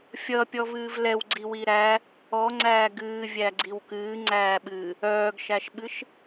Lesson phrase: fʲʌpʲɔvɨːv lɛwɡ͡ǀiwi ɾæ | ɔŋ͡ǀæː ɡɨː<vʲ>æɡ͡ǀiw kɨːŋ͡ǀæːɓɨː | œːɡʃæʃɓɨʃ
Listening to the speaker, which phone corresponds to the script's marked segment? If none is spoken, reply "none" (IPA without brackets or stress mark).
vʲ